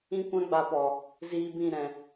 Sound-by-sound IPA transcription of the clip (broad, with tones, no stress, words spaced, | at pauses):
ĩ˦kʷã˦ɡ͡ba˧pɔ˨ | ziː˧bĩ˦˨ ɾɛ̃˨